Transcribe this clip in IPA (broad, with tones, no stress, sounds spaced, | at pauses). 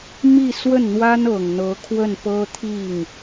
m i˥˧ s w ə˥˩ n n̪ w a˥ n ɤ˨˩ ŋ n̪ ɤ˧˥ kʰ w ə˥˩ n p ɤ˥ t̪ʰ i˥˩ ŋ